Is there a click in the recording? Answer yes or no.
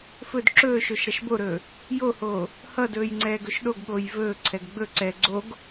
yes